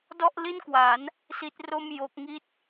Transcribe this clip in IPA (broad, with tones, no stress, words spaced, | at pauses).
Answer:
dɔ˥˩ʔli˥˩nkwa˩˦n | si˦˥t̚ro˥˩m jo˦˥k̚ŋi˥˩t̚